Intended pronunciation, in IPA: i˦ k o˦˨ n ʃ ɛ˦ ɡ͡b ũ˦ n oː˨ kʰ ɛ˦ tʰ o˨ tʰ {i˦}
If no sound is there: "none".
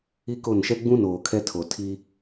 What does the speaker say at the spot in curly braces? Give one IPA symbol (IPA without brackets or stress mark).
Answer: i˦